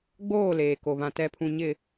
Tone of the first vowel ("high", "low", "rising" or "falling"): falling